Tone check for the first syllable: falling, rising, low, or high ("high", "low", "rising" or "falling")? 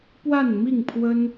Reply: falling